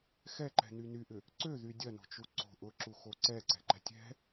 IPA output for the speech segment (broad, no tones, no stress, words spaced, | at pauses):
xɛǃɛ̤ny nyʔʏ | ǀøðy dʲɐno̤t͡ʃu ǀo̤ ʔʊǁuxo ǀɛǀɛ̤ǃɛ̤ tʲɛ̤